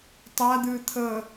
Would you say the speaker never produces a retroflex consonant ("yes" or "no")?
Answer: yes